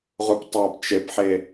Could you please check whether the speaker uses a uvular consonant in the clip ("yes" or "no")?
yes